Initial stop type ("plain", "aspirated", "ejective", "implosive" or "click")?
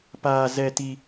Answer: plain